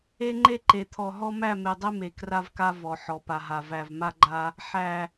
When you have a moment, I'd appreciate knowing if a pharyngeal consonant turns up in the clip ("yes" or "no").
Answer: yes